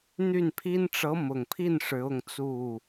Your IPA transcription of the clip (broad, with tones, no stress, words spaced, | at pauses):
n̪y˥˩npʰi˥n ʈ͡ʂɤ˧˥mʊ˨˩ŋpʰi˥˩n ʂɻ̩˧˥ʊ˥˧ŋt͡su˥˩